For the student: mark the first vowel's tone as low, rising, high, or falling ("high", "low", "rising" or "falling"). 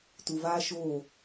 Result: low